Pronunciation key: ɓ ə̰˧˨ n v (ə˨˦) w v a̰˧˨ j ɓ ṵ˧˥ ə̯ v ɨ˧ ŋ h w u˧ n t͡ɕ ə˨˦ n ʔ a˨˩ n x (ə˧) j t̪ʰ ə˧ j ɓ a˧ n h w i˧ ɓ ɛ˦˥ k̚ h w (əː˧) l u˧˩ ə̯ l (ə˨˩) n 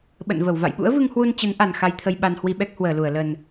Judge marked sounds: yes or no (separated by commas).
no, no, no, yes